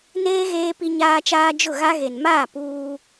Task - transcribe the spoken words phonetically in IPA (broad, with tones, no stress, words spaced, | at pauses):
neː˦ ɣeː˦pi˦ɲaː˦t͡ʃaː˦ d͡ʒʊ˦˨ɣa˦ɣe˨n maː˦˨ puː˦